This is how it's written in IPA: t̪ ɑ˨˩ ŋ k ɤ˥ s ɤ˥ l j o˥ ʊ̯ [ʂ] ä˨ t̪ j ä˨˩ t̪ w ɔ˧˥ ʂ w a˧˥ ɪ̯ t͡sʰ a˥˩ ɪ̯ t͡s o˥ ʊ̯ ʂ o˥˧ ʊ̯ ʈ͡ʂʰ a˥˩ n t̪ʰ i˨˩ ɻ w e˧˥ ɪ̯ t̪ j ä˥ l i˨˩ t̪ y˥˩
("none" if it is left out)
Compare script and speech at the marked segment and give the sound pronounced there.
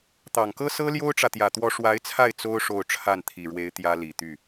ʈ͡ʂ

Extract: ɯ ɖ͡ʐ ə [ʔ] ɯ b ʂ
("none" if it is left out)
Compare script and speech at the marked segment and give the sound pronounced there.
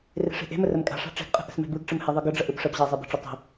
ʔ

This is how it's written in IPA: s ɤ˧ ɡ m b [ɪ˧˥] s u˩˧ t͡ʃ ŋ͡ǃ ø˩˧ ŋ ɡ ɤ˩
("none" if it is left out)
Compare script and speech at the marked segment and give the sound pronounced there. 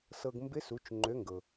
ɪ˧˥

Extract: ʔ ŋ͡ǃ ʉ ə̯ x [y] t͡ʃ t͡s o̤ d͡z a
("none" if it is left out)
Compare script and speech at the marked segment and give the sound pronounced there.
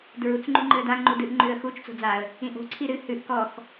u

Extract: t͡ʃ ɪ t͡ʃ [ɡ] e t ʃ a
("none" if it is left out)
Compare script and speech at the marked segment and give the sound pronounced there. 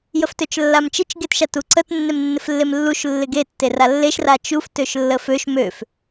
ɡ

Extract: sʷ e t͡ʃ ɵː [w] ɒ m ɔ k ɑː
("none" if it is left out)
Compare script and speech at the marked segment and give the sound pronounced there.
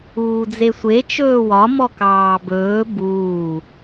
w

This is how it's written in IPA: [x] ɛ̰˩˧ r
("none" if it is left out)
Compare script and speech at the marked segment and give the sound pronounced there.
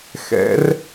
x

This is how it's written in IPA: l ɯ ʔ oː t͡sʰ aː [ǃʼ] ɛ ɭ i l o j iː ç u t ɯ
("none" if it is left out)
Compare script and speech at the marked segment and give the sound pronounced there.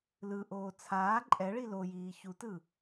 ǃʼ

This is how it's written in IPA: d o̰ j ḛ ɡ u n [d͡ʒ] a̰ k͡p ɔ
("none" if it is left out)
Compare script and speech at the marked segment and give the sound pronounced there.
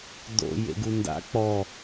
d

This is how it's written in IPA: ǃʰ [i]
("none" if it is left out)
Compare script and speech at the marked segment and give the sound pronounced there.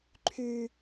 y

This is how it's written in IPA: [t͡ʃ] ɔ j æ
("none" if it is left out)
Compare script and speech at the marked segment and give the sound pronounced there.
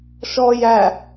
ʃ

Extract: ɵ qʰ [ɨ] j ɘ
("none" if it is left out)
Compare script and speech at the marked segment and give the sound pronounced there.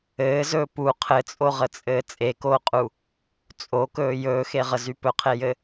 e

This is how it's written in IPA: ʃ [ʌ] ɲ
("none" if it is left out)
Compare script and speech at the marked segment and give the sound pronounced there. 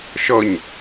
ʌ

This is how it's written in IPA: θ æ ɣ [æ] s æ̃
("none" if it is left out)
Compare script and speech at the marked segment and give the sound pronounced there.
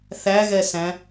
ɛ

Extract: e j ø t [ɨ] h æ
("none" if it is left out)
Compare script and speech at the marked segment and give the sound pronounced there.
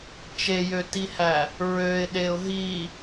i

